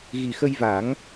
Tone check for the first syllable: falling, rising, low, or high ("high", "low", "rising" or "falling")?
low